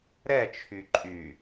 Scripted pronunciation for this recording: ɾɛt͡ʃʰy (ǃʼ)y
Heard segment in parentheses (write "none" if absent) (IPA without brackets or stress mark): ǃʼ